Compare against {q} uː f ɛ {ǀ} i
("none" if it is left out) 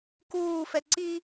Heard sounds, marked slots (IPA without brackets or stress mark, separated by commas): k, ǀ